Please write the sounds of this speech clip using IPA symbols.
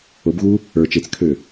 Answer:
obɣu | ə˞ t͡ʃet͡skʰø

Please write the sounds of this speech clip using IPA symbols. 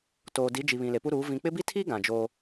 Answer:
toː˨di˨˦d͡ʒi˨βĩ˨ le˨pu˦ɾuː˨˦ vĩ˨k͡pɪ˦ bi˦tʰi˦ ɡã˨d͡ʒo˦

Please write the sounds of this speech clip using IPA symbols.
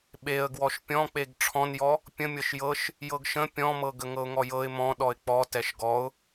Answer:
ɓeə̯ ɡwɔʃpʲɔ̃k͡peɡ ʈ͡ʂʰɔ̃njɔ | pʲə̃ mʲɤʃjɤʃ | jɤɡʃə̃ pʲɔ̃mɤ ɡəŋɤʊ̯ŋɔjɤɪ̯ mɔ̃ ɗɔɪ̯k͡pɔ tɛʃɡɔʊ̯

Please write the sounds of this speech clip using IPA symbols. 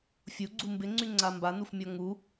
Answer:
fʲuɡ͡ǀu mbɪŋ͡ǀyŋ͡ǀa mbanufmʲɔ ŋu

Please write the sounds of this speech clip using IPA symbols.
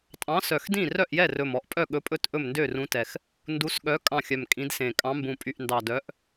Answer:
tʼɑ̃˨˥sœ˨˩xdĩ˥˩ rœ˥˩ʔjɛ˥˩rɵ˨˩m ɔ˨˩ʔpʼœ˥˩ɠɵ˨˥pʼɵ˥˩t ʔɵ˥˩mndø˥˩rũ˨˥tɛ˨˩x | ndu˨˥sɠœ˨˥ kʼɑ̃˥˩xʲœ˨˩mkʼĩ˨˥dsẽ˨˩ kʼɑ̃˨˥mbũ˨˩ pʼy˨˩ʔndɑ˨˩dœ˨˥ʔ

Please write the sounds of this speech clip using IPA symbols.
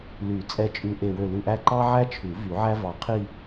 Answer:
ly˨˩˦ t͡sʼɛ˧˩t͡ʃʼʉ˧˩ ʔe˧˩wø˧˩lʉ˧˩ʔæ˥˧ ǃɑ˥ʕæ˥t͡ʃʰʉ˨˩˦ vy˨˩˦ʕæ˥ vɑ˧˩ qʰi˥˧

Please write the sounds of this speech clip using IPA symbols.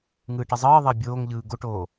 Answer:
ŋɯːʈəzˤɯːðˤəː bʲoːŋʎɯː ɡoʈoː

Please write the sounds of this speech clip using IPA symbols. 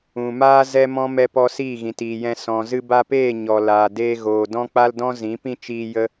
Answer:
ũ˨maː˦ zɛ˦mɔ̃˦ mɛ˧pɔ˧ siː˦˨ɣĩ˨tiː˨jɛ̃˧ sɔ̃˨ zɨ˧ba˧peː˦˨ ɲɔ˨ laː˨ deː˧ ɣoː˨dɔ̃˦k͡pa˦ldɔ̃˦ zĩ˨˦pĩ˦ t͡ʃiː˧ jə˦

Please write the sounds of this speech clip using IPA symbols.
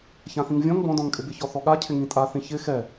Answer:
çãθĩŋvʲɔ̃ŋ bɔ̃dɔ̃ŋkʼɪ bɪçɔθɔɠa cʰɪŋĩtʼaθĩ çɪ xɛ

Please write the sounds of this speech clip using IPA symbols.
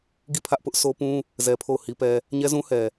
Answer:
ɡi˦˨pʰä˦ʔpʊ˦ʔ so˦pũ˦ | zɛ˦pʰo˦˨ʊ̯hi˦pɛ˦ | ɲɛ˦zũ˦hɛ˨

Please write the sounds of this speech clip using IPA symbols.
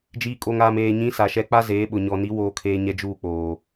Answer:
d͡ʒiː˨kʼo˨ŋaː˨m eː˨ɲĩ˨˦ sa˨ʃɛ˨˦ k͡pa˦zeː˨˦ ɓʊ˨ɲɔ˨ni˨˦ woː˦kʰeː˦ɲɛ˦ d͡ʒuː˦˨k͡poː˨

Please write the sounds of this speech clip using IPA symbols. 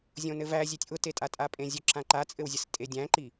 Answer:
zʲõnɘvæ zʲetʲʔʊtetʼa tʼapʼẽzʲʊ ǁãǃat͡sʼɘwzʲɘs tʼedʲæ̃ǃi

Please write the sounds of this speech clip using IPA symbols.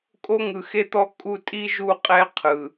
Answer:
kʼo˦ŋɯ˨xe˦t̪ɔ˦ kʼu˦ tʼi˦ʒu˦˨qʼɛ˦ qʰɯ˨

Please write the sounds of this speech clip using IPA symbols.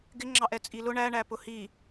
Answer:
ɡɪŋ͡ǁɑʔ ɛt͡sʼilʊ ɳæɳæ pʊhi

